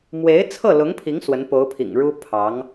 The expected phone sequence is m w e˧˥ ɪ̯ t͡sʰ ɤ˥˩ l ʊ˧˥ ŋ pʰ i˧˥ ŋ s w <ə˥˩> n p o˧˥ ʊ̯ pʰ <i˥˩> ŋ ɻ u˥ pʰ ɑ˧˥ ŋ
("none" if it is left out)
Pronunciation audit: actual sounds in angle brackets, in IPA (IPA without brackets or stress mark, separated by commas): ə˧˥, ḭ˨˩